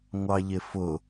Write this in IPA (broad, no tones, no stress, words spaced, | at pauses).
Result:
ŋʷɑʎɪfʊ